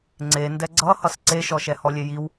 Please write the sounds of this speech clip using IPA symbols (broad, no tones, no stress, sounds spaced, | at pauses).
ŋ͡ǀ e n d ɛ ɡ͡ǀ ʌ h ʌ s ǀ e ʃ ɔ ʃ ɛ h ɔ lʲ e j i w